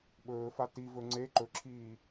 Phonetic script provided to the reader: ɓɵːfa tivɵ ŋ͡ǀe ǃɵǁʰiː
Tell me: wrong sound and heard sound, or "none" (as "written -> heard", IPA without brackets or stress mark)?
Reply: none